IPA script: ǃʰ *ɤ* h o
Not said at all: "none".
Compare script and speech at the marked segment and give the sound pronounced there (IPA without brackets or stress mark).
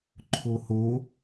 o